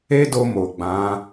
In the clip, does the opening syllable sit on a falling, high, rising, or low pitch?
high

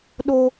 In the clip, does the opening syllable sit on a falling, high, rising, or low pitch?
low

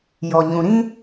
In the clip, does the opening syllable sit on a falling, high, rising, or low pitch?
low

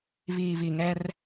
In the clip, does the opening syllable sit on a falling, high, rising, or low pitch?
low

